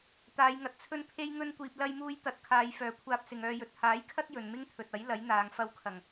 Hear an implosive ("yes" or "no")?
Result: no